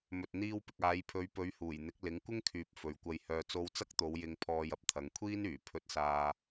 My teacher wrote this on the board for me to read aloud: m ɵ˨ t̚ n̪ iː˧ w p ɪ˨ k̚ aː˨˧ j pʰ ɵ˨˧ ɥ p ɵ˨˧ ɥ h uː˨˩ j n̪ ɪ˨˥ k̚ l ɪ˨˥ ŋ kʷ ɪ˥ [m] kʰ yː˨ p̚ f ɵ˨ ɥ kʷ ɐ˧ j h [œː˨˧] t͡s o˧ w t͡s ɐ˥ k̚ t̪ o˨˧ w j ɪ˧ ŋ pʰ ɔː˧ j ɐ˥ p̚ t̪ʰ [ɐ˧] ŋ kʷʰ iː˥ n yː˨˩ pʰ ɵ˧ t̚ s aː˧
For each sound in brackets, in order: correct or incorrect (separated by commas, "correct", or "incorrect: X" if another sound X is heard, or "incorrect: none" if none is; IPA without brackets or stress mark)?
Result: incorrect: ŋ, incorrect: œː˧, incorrect: ɐ˨˧